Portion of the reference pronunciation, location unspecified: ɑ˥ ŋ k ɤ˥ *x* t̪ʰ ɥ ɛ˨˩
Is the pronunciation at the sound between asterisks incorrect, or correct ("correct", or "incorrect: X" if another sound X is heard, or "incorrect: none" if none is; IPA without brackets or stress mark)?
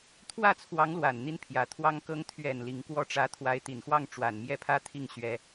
incorrect: ŋ